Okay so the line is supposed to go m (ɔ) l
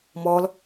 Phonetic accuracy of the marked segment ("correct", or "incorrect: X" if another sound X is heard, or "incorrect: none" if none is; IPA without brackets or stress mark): correct